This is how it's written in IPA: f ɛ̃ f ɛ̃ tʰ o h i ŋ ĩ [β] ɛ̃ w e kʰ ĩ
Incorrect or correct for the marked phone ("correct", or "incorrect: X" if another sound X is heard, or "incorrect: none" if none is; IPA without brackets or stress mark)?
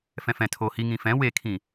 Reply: incorrect: f